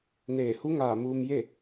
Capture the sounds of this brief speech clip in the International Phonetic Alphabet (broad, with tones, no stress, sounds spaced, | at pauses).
n eː˧˩ h u˧˥ ŋ aː˧˩ m uː˧ m j e˥˨